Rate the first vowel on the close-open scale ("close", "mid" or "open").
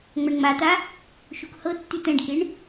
open